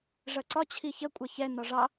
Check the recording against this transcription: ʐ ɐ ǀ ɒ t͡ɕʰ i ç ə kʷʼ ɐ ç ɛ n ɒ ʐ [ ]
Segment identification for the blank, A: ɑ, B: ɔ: A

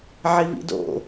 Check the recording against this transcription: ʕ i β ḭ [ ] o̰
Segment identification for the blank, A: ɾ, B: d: B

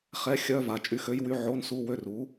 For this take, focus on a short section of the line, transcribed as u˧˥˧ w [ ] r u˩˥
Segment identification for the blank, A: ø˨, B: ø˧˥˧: B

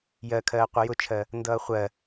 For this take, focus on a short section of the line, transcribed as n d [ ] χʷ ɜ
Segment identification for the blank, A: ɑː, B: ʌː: B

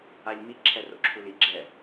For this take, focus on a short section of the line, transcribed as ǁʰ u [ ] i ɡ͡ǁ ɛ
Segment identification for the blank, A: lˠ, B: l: B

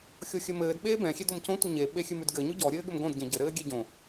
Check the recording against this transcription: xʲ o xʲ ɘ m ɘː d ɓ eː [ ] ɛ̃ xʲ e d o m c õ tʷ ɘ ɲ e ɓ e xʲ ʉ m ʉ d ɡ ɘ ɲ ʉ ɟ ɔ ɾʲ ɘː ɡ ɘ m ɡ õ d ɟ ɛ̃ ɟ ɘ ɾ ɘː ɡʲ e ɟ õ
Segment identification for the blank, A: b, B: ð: A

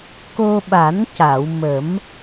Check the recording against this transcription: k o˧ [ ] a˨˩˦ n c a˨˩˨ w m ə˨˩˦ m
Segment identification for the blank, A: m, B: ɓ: B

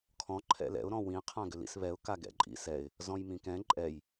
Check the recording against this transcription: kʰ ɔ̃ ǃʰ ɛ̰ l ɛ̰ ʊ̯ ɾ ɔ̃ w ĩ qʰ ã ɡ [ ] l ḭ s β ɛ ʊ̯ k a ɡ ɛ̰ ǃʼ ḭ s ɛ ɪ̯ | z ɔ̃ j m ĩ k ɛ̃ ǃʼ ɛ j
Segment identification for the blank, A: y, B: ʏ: B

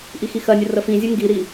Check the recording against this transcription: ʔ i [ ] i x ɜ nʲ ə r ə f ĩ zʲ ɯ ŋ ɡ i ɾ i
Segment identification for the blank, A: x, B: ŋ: A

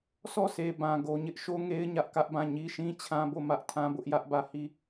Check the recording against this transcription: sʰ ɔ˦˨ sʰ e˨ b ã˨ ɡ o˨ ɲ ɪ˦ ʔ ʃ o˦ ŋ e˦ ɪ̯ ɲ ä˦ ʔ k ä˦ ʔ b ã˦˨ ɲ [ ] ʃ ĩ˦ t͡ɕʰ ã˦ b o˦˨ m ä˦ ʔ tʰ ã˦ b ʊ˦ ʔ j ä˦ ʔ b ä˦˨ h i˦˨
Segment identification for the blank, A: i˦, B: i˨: A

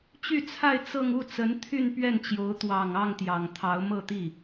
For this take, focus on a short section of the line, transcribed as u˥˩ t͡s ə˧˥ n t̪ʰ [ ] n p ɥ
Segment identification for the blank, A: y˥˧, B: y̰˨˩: A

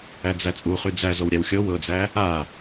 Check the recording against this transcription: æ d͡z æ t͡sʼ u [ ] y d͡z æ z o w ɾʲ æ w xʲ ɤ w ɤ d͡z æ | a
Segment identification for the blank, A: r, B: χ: B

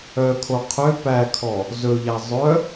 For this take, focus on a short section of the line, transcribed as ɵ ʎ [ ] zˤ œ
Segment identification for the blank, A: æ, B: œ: A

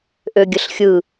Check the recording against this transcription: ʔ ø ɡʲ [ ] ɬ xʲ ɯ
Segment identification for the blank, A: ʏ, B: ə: B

